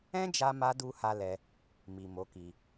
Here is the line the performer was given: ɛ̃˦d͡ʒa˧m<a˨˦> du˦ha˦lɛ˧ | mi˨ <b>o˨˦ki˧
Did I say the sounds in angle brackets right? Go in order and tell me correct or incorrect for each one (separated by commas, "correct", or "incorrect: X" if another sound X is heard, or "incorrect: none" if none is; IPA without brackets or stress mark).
incorrect: a˧, incorrect: m